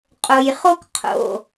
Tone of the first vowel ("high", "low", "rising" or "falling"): low